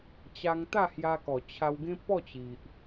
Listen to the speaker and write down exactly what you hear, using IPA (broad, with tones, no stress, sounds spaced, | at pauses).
t͡ɕ a˧ ŋ t̪ a˥˧ h j a˧ k ɔ˨˩ t͡ɕʰ a˧ w ɡ ẽ˦ p ɔ˥˧ t͡ɕ i˨ ʔ